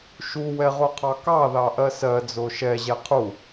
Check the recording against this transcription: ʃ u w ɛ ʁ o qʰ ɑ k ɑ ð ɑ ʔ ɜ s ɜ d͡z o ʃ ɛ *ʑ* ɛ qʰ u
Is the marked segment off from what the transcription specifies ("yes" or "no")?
no